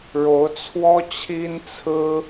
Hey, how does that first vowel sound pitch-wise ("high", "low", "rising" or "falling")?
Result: rising